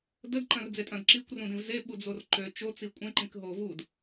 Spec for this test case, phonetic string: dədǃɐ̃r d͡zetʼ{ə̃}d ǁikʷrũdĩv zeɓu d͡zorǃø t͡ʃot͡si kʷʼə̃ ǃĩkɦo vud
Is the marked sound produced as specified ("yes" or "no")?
no